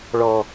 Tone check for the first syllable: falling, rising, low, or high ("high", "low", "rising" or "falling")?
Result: low